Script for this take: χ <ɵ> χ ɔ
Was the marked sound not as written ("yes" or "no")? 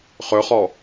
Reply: no